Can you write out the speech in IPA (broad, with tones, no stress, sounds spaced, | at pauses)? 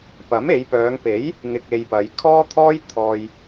p ɐ˨˥ m e˨˧ j p œː˨˧ ŋ p e˨˥ j | ŋ ɪ˧ k̚ e˧ j p ɐ˨˧ j kʰ ɔː˥ t̪ʰ ɔː˥ j t̪ʰ ɔː˧ j